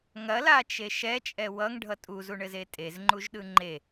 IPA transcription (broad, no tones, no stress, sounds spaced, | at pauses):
ŋ ɐ l a t͡ʃ e ʃ ɛ t͡ʃʼ ɛ w ʌ ŋ ɖʱ ʌ tʼ u z u ɳ ɘ z e tʼ e z ŋ͡ǃ u ʒ ɗ ɯ ŋ͡ǃ e